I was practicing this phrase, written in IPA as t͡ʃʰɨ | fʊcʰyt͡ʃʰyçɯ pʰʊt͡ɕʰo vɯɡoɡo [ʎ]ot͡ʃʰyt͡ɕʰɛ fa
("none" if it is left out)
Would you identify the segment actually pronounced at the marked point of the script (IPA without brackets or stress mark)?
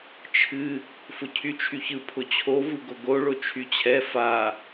ɭ